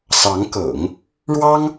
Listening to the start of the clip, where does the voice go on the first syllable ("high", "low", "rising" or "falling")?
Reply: rising